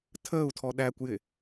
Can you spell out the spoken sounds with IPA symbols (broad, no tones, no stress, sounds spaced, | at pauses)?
tʰ əː u̯ tʰ ɔ ɗ æ kʷ j ɪ